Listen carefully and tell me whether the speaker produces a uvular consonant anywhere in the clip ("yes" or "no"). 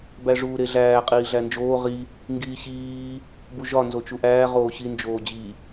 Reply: yes